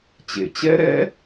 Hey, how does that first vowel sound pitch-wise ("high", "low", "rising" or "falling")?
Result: low